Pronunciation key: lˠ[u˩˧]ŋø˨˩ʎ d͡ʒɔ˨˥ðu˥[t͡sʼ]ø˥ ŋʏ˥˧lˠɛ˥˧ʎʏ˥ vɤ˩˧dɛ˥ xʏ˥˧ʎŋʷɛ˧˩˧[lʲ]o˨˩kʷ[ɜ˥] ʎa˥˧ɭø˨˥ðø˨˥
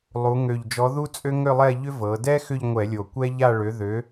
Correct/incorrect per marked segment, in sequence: correct, correct, correct, incorrect: ɛ˥

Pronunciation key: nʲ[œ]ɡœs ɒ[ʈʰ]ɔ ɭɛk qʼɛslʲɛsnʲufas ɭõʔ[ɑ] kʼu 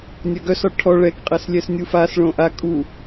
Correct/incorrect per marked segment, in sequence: correct, correct, incorrect: a

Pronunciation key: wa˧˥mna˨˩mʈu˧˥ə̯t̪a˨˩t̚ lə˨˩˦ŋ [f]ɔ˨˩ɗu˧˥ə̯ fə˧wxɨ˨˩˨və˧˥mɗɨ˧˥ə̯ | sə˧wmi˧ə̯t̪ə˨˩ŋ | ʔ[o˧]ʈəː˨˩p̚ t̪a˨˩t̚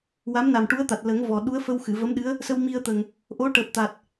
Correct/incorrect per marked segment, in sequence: incorrect: v, incorrect: o˧˥

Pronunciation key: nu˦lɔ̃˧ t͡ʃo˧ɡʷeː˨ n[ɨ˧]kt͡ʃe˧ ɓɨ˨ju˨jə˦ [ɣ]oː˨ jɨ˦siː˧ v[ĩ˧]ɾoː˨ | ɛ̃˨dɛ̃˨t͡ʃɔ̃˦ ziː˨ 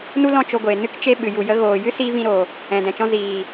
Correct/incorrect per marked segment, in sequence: correct, correct, correct

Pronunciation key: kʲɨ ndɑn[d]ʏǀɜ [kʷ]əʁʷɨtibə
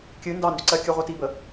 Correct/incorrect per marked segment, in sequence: correct, incorrect: kʲ

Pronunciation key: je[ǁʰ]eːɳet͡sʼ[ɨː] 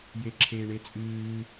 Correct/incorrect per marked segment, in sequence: correct, correct

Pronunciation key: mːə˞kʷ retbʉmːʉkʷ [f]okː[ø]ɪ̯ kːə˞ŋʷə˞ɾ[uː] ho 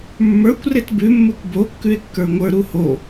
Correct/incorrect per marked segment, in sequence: incorrect: b, incorrect: ʉ, incorrect: u

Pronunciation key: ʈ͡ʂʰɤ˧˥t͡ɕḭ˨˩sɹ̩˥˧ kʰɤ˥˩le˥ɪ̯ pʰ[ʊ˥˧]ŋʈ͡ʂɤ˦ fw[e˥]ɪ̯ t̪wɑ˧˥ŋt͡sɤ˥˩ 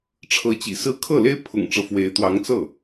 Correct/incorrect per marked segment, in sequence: incorrect: ʊ̰˨˩, incorrect: e˧˥

